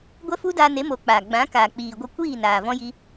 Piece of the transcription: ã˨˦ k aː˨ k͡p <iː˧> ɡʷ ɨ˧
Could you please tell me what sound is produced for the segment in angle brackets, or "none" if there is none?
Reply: iː˨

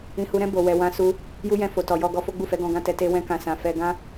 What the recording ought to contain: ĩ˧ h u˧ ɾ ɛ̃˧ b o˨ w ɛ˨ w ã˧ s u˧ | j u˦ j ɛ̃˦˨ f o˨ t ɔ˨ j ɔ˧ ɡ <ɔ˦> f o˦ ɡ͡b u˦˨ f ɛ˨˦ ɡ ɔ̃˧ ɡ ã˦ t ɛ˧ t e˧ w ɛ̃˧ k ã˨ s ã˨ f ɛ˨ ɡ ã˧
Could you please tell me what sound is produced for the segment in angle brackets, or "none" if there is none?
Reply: ɔ˧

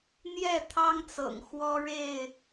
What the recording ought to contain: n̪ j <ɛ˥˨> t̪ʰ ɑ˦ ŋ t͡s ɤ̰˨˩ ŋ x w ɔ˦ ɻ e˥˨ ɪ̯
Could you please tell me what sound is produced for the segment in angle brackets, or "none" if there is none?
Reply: ɛ˥˨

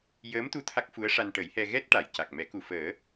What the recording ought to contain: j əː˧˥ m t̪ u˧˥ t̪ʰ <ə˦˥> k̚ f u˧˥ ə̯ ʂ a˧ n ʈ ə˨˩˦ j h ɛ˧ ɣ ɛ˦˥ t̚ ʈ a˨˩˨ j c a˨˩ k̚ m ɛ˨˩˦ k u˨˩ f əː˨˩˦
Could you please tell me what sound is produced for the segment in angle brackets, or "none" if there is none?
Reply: a˦˥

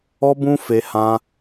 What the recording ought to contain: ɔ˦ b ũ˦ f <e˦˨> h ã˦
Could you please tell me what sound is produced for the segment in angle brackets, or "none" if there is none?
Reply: e˦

